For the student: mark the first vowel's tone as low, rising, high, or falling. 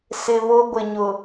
low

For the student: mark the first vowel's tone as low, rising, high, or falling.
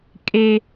high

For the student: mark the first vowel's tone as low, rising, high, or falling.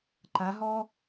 rising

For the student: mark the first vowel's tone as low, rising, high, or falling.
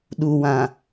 low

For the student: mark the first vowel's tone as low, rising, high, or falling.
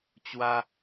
high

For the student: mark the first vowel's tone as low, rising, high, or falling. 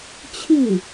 falling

